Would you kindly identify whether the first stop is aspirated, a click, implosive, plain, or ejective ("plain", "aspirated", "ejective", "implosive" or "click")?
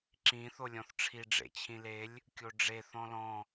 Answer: click